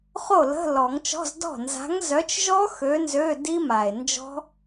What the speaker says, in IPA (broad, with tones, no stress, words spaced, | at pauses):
χo˥˩lə̤˧˥˧lɔ˨˩˦ŋt͡ʃɔ̤˧˥˧z dɔ̤˥˩ nza̤˨˥ŋzœ˨˥t͡ʃʒɔ˦˥ xø˨˥nzø˧˥˧ di˦˥ma˨˩e̯nd͡ʒɔ̤˦˥